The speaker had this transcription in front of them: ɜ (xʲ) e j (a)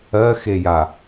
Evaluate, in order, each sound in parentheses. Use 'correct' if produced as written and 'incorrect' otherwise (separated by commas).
incorrect, correct